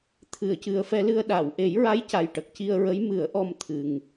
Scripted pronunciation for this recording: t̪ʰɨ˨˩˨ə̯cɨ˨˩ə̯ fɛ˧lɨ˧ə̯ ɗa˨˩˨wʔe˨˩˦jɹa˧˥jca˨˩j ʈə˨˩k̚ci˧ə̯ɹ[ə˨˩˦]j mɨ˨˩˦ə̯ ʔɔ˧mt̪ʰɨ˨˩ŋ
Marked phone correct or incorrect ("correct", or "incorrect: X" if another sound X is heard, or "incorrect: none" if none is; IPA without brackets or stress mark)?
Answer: incorrect: ə˧˥